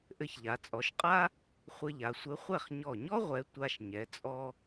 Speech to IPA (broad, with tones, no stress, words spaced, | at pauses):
ʔɘ˧çʎa˩˧t͡sʼɔ˩˧ʃqʼa˥ | χʷɘ˧ʎa˩˧sʷɘ˨˥ χʷɛ˥˩χɲɔ˧˩ɲɔ˥ ʁʷɛ˨˥ tʷa˧ʃɲɛ˩˧t͡sʼɔ˧